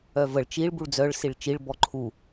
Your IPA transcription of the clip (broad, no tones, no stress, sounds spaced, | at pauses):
œ v ə ɭ t͡ʃ i ɭ b u ɭ d͡z œ ɭ s i ɭ t͡ʃ i ɭ b ɔ ǃʰ u